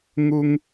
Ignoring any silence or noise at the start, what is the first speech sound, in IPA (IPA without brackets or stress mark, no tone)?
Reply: ŋ